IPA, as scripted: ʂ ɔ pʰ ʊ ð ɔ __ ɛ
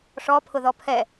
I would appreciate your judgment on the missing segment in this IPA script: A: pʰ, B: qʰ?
A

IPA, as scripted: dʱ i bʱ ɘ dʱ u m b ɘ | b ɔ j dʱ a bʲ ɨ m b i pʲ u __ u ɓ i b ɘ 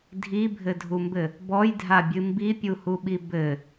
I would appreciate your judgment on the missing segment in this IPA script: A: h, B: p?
A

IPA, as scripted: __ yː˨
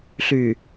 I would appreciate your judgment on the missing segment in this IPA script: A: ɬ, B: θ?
A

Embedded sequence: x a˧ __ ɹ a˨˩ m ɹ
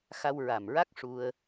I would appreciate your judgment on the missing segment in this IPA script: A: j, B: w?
B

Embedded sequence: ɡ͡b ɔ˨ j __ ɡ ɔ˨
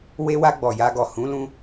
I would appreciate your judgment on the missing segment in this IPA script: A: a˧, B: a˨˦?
A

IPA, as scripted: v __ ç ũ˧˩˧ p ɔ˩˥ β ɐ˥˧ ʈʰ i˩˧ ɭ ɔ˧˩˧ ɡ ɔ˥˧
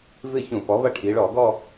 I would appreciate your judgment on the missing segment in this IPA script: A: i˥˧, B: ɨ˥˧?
B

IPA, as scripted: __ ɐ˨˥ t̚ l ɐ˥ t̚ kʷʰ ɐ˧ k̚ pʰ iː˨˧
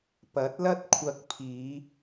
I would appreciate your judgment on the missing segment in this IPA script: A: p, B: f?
A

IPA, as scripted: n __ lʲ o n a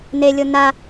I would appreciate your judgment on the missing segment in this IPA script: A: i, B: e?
B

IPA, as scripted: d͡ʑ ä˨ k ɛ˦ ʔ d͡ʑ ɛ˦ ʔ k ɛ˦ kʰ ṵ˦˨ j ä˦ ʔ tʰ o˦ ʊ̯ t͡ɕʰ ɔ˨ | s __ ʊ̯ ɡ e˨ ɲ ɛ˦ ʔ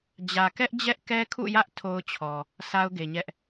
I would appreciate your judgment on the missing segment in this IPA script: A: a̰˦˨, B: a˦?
B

